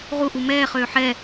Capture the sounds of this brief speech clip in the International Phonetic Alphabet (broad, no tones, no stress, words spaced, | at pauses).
ʁuʔu mɛːχøː ħɛ